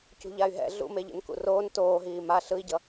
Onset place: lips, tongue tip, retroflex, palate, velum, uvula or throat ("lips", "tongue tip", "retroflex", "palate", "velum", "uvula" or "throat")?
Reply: palate